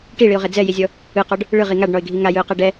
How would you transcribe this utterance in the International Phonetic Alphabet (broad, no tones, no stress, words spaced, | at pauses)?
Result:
ʈiɭiʊ̯ʁe d͡zɛjizʲɔ | ɯqɔɖ | ɭɯʁi ŋaɖɳɔɪ̯ɡʱi ŋajɯʊ̯qɛɖ ɛ